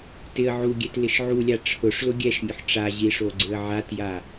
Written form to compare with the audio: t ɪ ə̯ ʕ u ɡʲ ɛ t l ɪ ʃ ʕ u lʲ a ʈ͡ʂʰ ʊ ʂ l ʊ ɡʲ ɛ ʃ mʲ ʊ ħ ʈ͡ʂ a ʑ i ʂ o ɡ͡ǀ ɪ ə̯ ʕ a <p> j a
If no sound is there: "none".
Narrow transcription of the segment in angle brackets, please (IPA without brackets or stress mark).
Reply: t